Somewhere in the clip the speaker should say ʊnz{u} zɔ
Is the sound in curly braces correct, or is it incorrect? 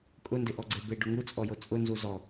correct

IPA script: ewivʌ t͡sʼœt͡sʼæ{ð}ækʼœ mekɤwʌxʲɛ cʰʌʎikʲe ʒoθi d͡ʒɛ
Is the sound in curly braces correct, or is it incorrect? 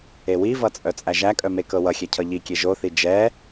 incorrect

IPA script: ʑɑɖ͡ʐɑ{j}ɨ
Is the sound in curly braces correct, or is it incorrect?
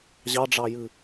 correct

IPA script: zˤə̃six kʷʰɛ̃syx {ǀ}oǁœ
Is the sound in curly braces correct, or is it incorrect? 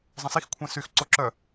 correct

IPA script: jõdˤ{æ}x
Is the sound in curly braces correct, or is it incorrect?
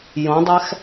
correct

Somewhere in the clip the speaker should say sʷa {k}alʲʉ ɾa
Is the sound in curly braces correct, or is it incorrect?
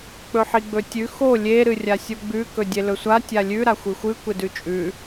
incorrect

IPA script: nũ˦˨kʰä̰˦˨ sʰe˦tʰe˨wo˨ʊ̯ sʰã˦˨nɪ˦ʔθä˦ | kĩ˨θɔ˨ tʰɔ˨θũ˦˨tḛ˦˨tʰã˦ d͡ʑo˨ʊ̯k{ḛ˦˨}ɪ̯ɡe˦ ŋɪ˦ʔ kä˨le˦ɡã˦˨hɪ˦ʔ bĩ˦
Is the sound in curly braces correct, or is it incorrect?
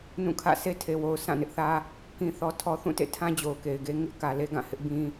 incorrect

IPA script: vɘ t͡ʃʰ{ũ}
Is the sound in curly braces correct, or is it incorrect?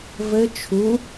incorrect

